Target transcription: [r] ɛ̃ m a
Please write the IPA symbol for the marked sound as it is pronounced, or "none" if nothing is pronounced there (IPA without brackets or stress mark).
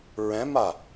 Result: ɹ